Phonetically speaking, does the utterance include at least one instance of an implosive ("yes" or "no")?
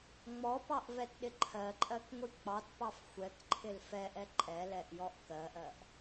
yes